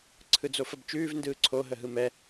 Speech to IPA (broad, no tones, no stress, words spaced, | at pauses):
ǀʰɯd͡zofəbt͡ʃʉːv ndɯːǀʰo ɦəɦɯmɛ